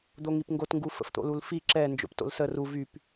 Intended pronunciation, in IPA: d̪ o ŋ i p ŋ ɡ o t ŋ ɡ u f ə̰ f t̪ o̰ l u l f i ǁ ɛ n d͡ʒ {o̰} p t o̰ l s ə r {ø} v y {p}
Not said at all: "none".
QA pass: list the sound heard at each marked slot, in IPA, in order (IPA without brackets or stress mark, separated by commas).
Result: o̰, u, p